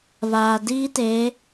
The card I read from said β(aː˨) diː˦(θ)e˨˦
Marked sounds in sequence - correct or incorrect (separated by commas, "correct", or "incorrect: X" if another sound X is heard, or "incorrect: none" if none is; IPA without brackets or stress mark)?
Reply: correct, incorrect: t